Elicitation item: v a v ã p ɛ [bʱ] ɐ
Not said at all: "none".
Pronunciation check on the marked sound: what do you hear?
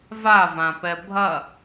bʱ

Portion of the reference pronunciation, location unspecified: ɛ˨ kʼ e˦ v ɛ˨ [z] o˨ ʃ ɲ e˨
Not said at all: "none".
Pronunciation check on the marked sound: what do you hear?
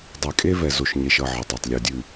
z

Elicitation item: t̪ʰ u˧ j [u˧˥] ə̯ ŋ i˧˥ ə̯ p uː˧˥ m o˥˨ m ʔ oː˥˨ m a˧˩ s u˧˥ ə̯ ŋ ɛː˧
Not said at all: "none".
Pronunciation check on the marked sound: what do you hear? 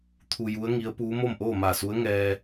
u˧˥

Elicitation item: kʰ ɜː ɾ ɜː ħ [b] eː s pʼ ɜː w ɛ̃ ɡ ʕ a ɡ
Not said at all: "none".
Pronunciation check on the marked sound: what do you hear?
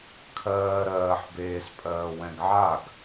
b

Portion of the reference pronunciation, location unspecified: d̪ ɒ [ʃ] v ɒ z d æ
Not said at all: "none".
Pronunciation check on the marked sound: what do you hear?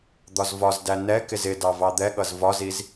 z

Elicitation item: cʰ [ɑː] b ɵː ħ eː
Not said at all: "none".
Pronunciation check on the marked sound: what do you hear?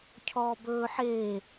ɔː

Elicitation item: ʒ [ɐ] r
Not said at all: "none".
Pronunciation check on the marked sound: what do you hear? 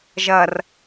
ɐ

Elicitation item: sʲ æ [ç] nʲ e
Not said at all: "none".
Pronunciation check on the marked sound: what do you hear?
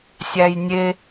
j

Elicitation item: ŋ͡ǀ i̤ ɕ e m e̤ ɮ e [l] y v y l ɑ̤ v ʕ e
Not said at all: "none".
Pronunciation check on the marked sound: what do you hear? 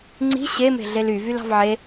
l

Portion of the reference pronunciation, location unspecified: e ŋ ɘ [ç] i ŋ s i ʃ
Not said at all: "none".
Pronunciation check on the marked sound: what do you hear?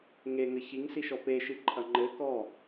ç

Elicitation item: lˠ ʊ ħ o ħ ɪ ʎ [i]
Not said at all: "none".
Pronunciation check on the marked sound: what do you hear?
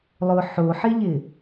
ɪ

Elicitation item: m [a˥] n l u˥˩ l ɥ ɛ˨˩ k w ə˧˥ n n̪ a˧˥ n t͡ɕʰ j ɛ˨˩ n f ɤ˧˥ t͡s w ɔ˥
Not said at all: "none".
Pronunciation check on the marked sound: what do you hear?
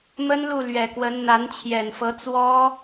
ə˥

